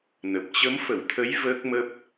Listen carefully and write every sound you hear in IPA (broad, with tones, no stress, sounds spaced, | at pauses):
n ə˨˩ p̚ t͡ɕ ə˨˦ m f ə˧˩ w t̪ʰ ə˨˦ j v əː˦˥ k̚ m ə˦˥ p̚